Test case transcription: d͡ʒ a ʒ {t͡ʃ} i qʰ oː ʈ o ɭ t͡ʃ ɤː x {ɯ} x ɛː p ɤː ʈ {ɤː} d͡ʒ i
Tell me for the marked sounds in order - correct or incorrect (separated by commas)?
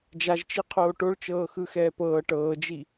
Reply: correct, correct, correct